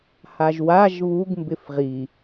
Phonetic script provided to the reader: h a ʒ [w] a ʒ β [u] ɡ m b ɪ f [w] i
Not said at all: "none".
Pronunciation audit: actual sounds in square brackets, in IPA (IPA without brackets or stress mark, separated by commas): w, u, ʁ